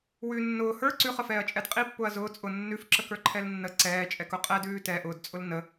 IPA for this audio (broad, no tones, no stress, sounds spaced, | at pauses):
w ʉ nː ʊː h ə˞ ǀ ʉ χ ə f ɛː ɐ̯ t͡ʃʼ ɛ d qʼ i pː ʊː ɐ̯ z ʊː t͡sʼ ʊ nː ʉ f ǁ ə k ə˞ ǃʰ ɛ l nː ə ǀ ɛː t͡ʃʼ ɛ k ʊ qʼ ɛ d ʉː t ɛ ʔ ʊː d t͡sʼ ʊ l n ə